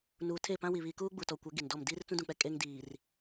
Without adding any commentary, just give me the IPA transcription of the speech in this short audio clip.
n uː˨ tʰ e˦˨ p ã˦ w i˨ β iː˨ k uː˦ ɡ͡b u˨ t ɔ˨ kʷ ɛ˨˦ ɡ i˨ n d ɔ˦˨ m d iː˦ r t͡s ũ˦ d ũ˨ k͡p ɛ˦ kʼ e˦ ŋ d iː˨ r

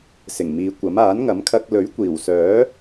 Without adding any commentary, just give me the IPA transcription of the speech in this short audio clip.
s ɪ˨˩ ŋ m iː˨˧ kʷ ɐ˨˥ m aː˨˥ n ŋ ɐ˨˥ m kʰ ɐ˧ k̚ l ɵ˨˥ ɥ kʷ iː˨˩ w s œː˨˥

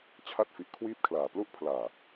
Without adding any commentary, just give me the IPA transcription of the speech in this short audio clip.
t͡ɕʰ a˥˩ t̚ f i˨˩ ʔ kʰ w iː˦˥ p̚ kʰ l aː˨˩ p l u˦˥ ʔ pʰ l aː˨˩

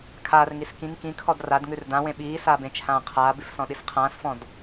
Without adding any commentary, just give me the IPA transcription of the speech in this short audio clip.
kʰ aː r ŋ i s k ĩ ŋ k ĩ kʰ ɔ d r a d ŋ ʉ r d ã w ẽ ɓ iː s aː b ẽ t͡ʃʰ ãː qʰ aː b ʉ f s ɔ̃ ɗ i s qʰ ãː s f ɔ̃ d

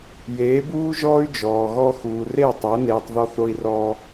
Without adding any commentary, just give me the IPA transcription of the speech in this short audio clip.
j eː˨˦ b uː˦ ʒ ɔː˦ y̯ d͡ʒ ɔː˨ ɣ ɔ˦ x uː˨ r e˦˨ tˤ o˨˦ n eː˧ tˤ ð ɔ˦ θ o˦ i̯ r ɔː˦

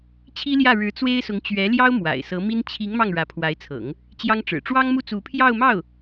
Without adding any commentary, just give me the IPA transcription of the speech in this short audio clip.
t͡ɕʰ i˥ l j ä˥˩ ɻ ɻ̩˧˥ t͡s w e˥ ɪ̯ s ʊ˧˥ ŋ t͡ɕ ɥ ɛ˧˥ l j ɑ˥ ʊ̯ m w a̰˨˩ ɪ̯ s ɤ˧˥ m i˥ n t͡ɕʰ i˧˥ ŋ m ɑ˥˩ ŋ ɻ ä˧˥ pʰ w a˧˥ ɪ̯ t͡sʰ ɤ̰˨˩˦ ŋ | t͡ɕ j ɑ˥ ŋ ʈ͡ʂ ɻ̩˨˩ ʈ͡ʂ w ɑ˥ ŋ m u˥˩ t͡s u˧˥ pʰ j ɑ˥˧ ʊ̯ m ɑ˥˩ ʊ̯

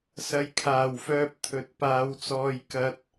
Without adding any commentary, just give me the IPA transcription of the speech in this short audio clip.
s ɐ˨ j kʰ aː˨˩ w f œː˨ p̚ t̪ʰ ɵ˨˥ t̚ p aː˨˧ w t͡s ɔː˧ j k ɐ˧ t̚

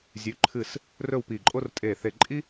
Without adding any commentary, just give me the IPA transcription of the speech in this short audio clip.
zʲ ʉ˩˧ ǃʰ ɨ˧˩ s | r ɵ˥˧ w p i˧˩ ǃʼ o˥ r tʼ e˧˩ θ e˧˩ ǃʼ i˥

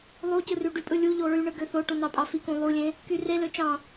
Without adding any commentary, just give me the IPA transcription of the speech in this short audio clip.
lˠ u c ɯ r y ɖ y pʼ ɯ lʲ u ʎ o ɹ y ɳ ɯ ɡ ø θ o ʈ ũ n ɑ pʼ ɑ f i k ũ lˠ u lʲ ẽ | k y r e l ø t͡ʃ ɑ̃

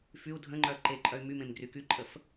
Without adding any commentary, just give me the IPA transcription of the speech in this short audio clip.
f y u̯ dʱ ə̃ ŋ͡ǃ œː ǃ e ǃʼ œ y̯ m y m ẽ m ɡ r y k y ǃʼ ə f

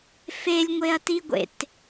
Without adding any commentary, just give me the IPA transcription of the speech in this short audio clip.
f e lʲ ŋʷ e ɐ̯ t i ɡʷ ḛ t

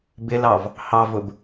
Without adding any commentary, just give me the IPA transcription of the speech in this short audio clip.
b ɪ l ɑ v | h ɑ v ʊ b

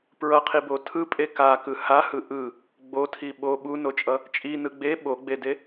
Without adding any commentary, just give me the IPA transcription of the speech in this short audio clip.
p ɹ ʌ qʰ i b o tʰ ɯ pʼ e k a k ɯ h a h ɯ ʔ ɯ | ɡ͡b o tʰ i ɓ o ɓ u n o t͡ʃʼ ʌ | t͡ʃʼ i n ɯ ɡ͡b e ɓ o ɡ͡b e d e

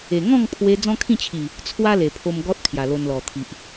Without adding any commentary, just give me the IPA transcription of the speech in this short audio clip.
e˨˩ ŋ ɔ̃˥˧ ŋ pʰ w e˧ d͡z ɔ̃˦ kʰ ĩ˥˧ t͡ɕʰ i˨˩ | t͡sʰ w a˦ l e˨˩ pʰ o˧ m ɡ ɔ˦ t̚ kʰ j a˨˩ l o˧ n l ɔ˨˩ t̪ʰ i˨ ʔ

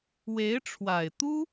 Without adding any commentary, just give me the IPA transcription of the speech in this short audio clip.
w e˧˥ ɪ̯ ʈ͡ʂʰ w a˨˩ ɪ̯ t̪ u˥

